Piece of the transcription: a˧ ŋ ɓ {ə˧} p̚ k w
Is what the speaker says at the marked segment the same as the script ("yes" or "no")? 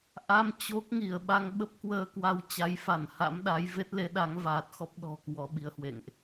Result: no